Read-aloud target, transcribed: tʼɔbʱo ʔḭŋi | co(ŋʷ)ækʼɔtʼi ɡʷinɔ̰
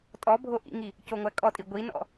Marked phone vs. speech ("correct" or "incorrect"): correct